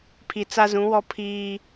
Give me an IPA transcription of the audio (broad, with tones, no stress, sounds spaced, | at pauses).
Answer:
pʰ i˨ t͡s a˦ z ũ˨˦ w ɔ˦ pʰ iː˦